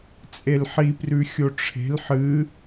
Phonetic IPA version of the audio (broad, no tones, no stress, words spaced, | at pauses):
t͡sʼelħiprʉ xʲoʈ͡ʂʰe̤l ħɨ